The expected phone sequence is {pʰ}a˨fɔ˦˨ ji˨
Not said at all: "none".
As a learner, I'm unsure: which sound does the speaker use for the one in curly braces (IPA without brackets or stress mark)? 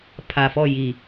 pʰ